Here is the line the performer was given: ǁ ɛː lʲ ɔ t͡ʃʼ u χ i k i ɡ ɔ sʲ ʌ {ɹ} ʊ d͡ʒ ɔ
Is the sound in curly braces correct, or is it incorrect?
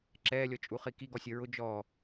correct